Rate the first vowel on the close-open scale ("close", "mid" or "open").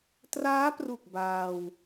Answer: open